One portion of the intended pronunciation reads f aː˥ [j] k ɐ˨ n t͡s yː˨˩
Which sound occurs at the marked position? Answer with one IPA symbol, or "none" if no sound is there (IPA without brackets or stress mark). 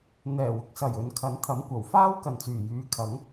w